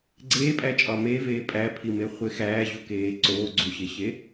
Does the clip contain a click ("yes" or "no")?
yes